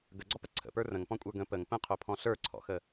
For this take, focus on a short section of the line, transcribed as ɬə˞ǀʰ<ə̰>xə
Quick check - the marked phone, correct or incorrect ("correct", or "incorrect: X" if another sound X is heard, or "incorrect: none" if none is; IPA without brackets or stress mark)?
incorrect: ɔ̰